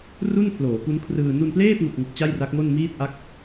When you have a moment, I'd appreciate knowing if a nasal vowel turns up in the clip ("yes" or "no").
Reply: no